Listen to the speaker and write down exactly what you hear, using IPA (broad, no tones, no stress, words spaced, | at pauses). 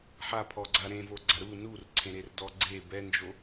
ħapʰɔɡ͡ǀa ɾẽvoɡ͡ǀa ɾu nurǀʰẽɾerdɔ ɡ͡ǀe bɛnd͡ʒo